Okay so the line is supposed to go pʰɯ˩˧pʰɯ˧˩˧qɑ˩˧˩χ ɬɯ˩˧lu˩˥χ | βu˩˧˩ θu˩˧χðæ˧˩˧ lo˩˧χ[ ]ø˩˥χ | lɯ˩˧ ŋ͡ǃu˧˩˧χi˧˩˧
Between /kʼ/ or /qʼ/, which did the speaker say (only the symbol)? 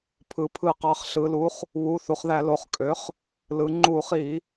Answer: kʼ